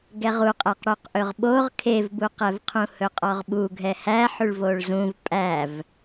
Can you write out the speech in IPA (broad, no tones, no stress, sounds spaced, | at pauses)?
ɡ ɛ ʁ u qʼ æ q ɽ ø q ʔ ɵ ʁ ɓ o ʁ kʰ e v b u q ɛ v qʰ ũ h ɵ qʼ ɔ ʁ ɓ u ɡʱ ɛ h æ ħ ʉ ɭ v o ɭ z ũ v pʼ æ v